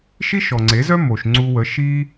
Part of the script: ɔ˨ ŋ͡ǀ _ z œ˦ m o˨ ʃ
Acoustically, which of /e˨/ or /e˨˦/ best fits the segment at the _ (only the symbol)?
e˨˦